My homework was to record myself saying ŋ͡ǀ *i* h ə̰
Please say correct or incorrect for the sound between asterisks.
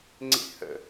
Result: incorrect: ḭ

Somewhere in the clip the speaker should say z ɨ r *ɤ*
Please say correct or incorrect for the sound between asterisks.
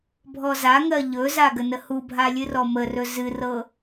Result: correct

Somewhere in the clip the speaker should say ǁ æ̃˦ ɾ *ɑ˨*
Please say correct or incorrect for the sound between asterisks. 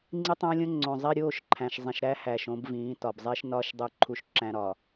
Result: incorrect: ɒ˨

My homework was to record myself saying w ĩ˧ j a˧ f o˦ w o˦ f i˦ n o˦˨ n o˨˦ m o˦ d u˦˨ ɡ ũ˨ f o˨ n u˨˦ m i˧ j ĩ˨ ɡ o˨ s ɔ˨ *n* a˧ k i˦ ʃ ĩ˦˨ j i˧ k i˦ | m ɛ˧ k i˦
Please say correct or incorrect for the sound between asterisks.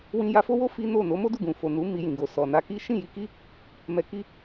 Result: correct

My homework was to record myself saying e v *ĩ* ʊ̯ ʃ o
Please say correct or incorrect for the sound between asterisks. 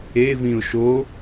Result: correct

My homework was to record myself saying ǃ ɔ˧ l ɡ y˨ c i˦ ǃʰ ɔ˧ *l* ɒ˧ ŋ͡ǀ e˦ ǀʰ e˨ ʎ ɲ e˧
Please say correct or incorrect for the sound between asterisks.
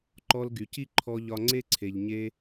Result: incorrect: ʎ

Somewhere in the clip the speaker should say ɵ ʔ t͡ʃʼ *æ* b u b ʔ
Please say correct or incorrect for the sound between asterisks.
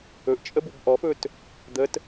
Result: incorrect: ə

